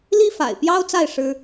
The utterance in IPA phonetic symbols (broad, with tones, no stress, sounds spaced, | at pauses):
l i˥ f a̰˨˩ ɪ̯ p j ɑ˥ ʊ̯ t͡s a˥˩ ɪ̯ ʂ ɻ̩˥